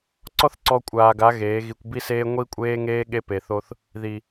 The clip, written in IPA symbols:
ǀ ɔ˦ θ ǀ ɔ˧ kʷʼ aː˨ ɡ a˨˦ ɣ eː˨˦ ɣ i˧ kʷ b i˦ s eː˦ ŋʷ i˦ kʷʼ eː˦ ŋ eː˦ ɠ e˦ p e˨ θ o˦ θ | ð i˨

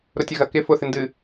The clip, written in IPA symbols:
ɾ ʊ tʲ ɐ ɣ ɐ k ɪ f ʊ θ ɪ n d ɨ

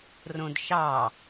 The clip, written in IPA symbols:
r õ d ʃ ɑ

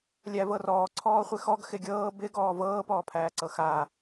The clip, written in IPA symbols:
lʲ æ v ɤ r ɔː ǀʰ ɔː χʷ ɪ x ɔ ɡ x ɪ ɡʲ ɤː b ɪ ɡ ɔː v ɤː p ɔː pʰ æː ǀ ɤ x a

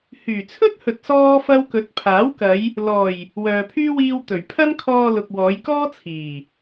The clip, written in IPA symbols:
h yː˨˩ t͡sʰ ɵ˥ t̚ h ɵ˨ t̚ s ɔː˥ f ɐ˥ w k ɵ˨˥ t̚ pʰ aː˨˥ w k ɐ˨˧ j | l ɔː˨˩ j | w œː˨ pʰ yː˥ w iː˧ w t̪ ɵ˨˩ ɥ pʰ ɐ˥ n kʰ ɔː˧ l ʊ˨ k̚ w ɔː˨˧ j k ɔː˥ t͡sʰ iː˨˩

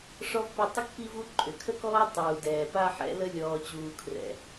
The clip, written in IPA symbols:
ʂ ɔ˥ v p ʏ˦ tˤ ə˥ k p i˦ v u˦ ǃʼ ʏ˩ kʰ ə˦ k ɔː˦ tˤ uː˩ d ɛː˩ p a˥ ħ ɛ̰˦ l ə˥ lʲ ɔː˨ t͡ɕ uː˨ kʰ r ɛ̰˩

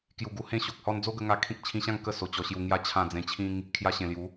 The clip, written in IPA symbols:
k j u˨˩ ɡ u˧ h ẽ˦ ɕ o˨ k̚ h ɔ˦ n d͡z o˦ ɡ ə˧ ŋ a˧ kʰ ĩ˦ k̚ t͡ɕʰ ĩ˧ ɕ ã˥˧ ŋ k ə˥˧ s o˧ t͡ɕ ɔ˧ ɕ j u˧ ŋ j a˥˧ t͡ɕʰ ã˥˧ d͡z ẽ˧ t͡ɕʰ ĩ˦ ŋ | kʰ j a˧ ɕ ẽ˨˩ l j u˨˦

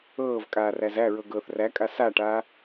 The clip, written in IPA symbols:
ɤː v kʼ aː r æ z æ ɹ ɤ ɡ ɤː θ r æ kʼ a s a ʈ aː

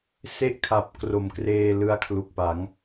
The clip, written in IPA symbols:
s e˥˩ ʔ kʰ a˨˩ p̚ k r o˨˩ m k r eː˧ l ɯ˧ a̯ kʰ l u˨˩ k̚ p a˩˦ ŋ

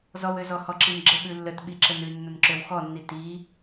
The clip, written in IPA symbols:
z ɔ w ø z ɔ h ɔ ǁ i n ɡ͡ǁ ə ɓ ʉ lː ə t ɓ i ǁ ə n ʉ nː ə n ǁ ø w x ɔ nː i t i

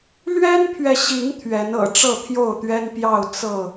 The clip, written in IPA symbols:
l ɥ ɛ˦ n pʰ ɥ ɛ˨ ɕ i˨˦ ŋ t̪ʰ ɥ ɛ˨˦ n ɤ̰˨˩ ʈ͡ʂ ɤ˥˨ t̪ʰ j o˥˨ ʊ̯ t̪ ɥ ɛ˦ n p j ɑ˥˨ ʊ̯ t͡s ɤ˥˨

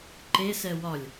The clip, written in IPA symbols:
ǃ e s ɛ w ɒ lʲ

